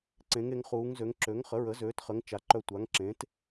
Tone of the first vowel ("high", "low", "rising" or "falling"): rising